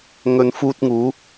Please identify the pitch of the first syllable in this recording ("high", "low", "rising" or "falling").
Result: low